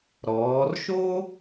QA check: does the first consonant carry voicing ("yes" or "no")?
yes